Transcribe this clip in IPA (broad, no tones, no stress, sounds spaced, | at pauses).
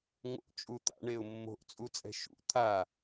ŋ o̰ t͡ʃʼ u t̪ a̰ ɳ e ʊ̯ mː o̤ ʔ t͡sʼ u t͡sʼ ɛ̤ ʃ ṵ t̪ʰ a